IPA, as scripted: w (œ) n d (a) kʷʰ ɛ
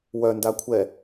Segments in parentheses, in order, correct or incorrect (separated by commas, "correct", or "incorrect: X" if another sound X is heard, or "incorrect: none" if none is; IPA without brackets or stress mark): correct, correct